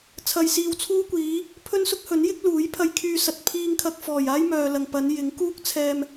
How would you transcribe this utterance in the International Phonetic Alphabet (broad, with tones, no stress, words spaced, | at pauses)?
t͡sʰɐ˧jsiː˧wt͡sʰuː˥ kʷiː˨˧ | pʰɵ˥nsʊ˥k̚hɵ˨˥njɪ˥k̚ luː˨˥jpʰɐ˧jkʰyː˧ sɐ˨t̚pʰiː˧ŋkʰɐ˧k̚ fɔː˨˩j aː˥jmœː˨lɐ˨ŋpɐ˨˧n jɪ˨˥ŋkuː˥k̚ t͡sʰɛː˧m